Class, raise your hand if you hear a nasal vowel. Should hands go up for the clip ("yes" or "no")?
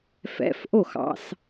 no